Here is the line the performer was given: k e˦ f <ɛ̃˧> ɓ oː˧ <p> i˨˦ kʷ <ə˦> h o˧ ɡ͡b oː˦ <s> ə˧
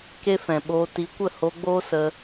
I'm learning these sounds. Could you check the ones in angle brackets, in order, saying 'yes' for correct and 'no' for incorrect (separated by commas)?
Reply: no, no, no, yes